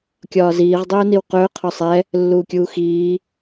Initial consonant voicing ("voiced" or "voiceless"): voiceless